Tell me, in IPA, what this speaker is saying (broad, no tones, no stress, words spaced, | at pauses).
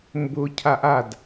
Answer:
mbʊ cʰaʔad